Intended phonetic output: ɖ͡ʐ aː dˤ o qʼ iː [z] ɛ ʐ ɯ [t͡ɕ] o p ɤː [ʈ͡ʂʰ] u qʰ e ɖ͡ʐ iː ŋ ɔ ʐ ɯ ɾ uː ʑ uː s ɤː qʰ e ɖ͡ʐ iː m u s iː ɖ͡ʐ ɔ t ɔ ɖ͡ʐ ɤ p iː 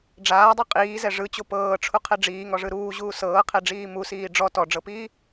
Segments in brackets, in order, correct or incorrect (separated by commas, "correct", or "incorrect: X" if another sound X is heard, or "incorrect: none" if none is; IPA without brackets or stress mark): correct, correct, correct